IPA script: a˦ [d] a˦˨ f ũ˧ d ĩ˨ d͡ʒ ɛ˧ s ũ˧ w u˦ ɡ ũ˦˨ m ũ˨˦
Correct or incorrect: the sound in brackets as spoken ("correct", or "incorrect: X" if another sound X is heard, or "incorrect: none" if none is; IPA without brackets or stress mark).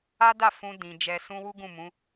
correct